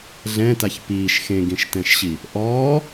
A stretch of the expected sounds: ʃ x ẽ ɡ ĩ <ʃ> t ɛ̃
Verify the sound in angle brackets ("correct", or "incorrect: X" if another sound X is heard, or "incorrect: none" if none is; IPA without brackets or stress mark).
correct